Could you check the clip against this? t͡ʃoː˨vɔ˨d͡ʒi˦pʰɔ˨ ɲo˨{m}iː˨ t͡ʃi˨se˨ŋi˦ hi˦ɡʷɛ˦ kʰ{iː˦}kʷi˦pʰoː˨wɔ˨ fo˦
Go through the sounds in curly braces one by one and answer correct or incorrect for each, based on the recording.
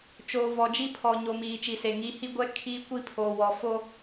correct, correct

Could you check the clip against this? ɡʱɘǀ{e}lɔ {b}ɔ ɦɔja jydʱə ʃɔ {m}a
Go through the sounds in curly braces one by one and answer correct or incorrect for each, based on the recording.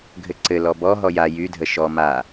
incorrect: ɘ, correct, correct

